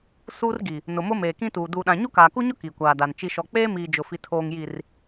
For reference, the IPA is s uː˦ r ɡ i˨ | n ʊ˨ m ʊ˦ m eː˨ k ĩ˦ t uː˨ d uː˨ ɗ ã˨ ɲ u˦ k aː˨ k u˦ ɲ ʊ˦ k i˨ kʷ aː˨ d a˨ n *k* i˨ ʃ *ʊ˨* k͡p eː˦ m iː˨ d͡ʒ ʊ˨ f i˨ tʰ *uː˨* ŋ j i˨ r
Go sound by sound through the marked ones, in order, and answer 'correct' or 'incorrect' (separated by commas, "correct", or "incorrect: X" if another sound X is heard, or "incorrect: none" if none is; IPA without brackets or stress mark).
incorrect: t͡ʃ, incorrect: ɔ˨, incorrect: oː˨